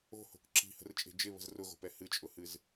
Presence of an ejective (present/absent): present